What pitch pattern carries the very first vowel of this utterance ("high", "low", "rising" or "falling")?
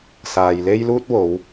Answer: low